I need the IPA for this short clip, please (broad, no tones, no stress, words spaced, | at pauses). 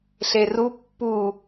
ɬeru pːu